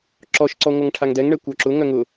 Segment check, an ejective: absent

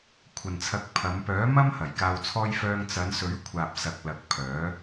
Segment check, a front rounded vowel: present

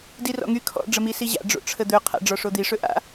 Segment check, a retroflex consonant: present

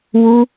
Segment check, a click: absent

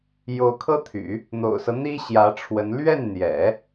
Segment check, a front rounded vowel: present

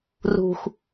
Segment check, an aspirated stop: absent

